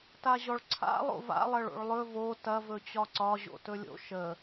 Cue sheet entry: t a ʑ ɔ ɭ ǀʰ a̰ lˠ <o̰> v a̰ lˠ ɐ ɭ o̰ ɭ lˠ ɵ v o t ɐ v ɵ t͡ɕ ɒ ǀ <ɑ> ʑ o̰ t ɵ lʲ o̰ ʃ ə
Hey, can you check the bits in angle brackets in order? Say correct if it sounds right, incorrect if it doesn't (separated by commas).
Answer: correct, incorrect